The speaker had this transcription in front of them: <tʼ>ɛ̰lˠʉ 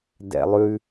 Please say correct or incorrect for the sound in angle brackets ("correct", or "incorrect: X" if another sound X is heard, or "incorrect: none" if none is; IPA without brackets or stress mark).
incorrect: d